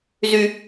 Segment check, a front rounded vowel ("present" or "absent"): present